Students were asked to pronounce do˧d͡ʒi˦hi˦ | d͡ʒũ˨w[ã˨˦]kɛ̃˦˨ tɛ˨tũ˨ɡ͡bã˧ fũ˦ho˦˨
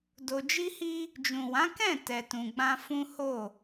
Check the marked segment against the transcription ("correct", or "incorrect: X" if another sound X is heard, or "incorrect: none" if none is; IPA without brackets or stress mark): correct